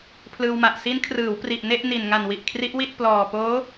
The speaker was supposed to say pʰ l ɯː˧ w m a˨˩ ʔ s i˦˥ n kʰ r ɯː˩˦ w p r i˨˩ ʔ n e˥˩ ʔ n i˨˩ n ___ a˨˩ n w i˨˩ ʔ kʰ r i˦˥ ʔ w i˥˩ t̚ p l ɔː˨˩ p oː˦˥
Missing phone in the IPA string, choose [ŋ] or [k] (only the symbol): ŋ